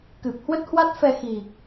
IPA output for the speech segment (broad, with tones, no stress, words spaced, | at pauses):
kɨ˨˩p̚hwə˦˥t̚hwa˦˥t̚fɛ˧ xi˨˩